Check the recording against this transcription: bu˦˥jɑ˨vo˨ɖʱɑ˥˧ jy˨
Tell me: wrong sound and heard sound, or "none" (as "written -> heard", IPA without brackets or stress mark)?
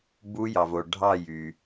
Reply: none